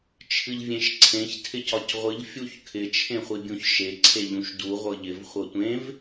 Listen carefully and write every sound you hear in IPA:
t͡ʃʰ ɨ ʎ vʲ ẽ ʃ ǀʰ ẽ ç tʰ ɪ c ɒ c ʁʷ ɨ ʎ fʲ u ç kʰ ɪ t͡ʃʰ ẽ χʷ i bʲ ũ ç ʃ e ǀʰ e ʎ ũ ʃ d u ʁʷ ɤ ʎ ɪ v χʷ ɤ tʷ ẽ v

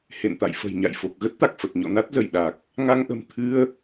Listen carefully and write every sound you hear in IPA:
h ḛ˧˨ n t̪ a̰˧˨ j f ə̤˨˩ j ɲ a̰˧˨ j f o˨˩ k̚ ɣ ə˦˥ t̚ t̪ a˨˩ k̚ f ə˨˩ t̚ ɲ ɔ̰˧˨ n a˦˥ t̚ z ə˧˩ j ɗ a˨˩ k̚ | ŋ a˧ ŋ ʔ ə̤˨˩ m t̪ʰ ɨ˧ ə̯

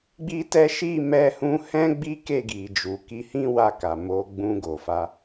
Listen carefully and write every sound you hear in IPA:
ɡ͡b i˦ t ɛ˦ ʃ i˦˨ m ɛ˧ h ũ˧ h ɛ̃˦ ɡ͡b i˦ k e˦˨ ɡ i˨ d͡ʒ u˨ k i˨˦ h ĩ˦ w a˧ k a˨ m o˧ ɡ͡b ũ˧ ɡ o˨ f a˧

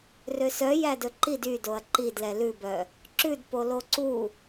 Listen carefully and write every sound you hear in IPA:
r ø s œ j æ d ɵ ǃ i d y d o ɐ̯ ǃ i d l ɛ l ʉ b œ | ǁ ʉ d p o l o ǀ u

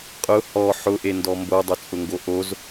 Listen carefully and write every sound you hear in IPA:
qʼ ʊ h ɔ ħ ʊ ʔ e n d ɔ m b o dˤ ʊ t͡sʼ ʊ ŋ ɡ o ʔ o z

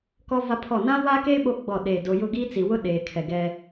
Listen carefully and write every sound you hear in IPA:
k ɔ˦ v a˦ pʰ ɔ˦˨ n ã˦ w a˦ k e˦ ɓ o˦ ɡ͡b ɔ˦˨ ɗ e˦˨ d o˦ j ʊ˦˨ ɡ i˦ t͡s i˨ w ʊ˦ ɗ eː˨ kʰ ɛ˨ ɡ ɛ˨

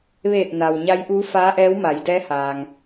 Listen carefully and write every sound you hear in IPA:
ʋ eː˧˩ t̚ n a˩ w ɲ a˧˥ j ʔ uː˧˥ f aː˧˥ ʔ ɛː˧˥ w m a˩˧ j d ɛː˧˥ h aː˩ ŋ

